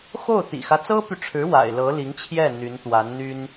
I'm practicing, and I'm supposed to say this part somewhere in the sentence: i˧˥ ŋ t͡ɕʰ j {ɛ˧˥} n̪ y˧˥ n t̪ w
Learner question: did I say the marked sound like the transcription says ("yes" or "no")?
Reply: no